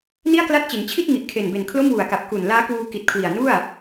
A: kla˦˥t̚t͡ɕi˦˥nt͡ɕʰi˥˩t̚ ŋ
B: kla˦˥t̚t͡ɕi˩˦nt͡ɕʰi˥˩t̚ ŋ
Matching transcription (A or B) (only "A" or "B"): B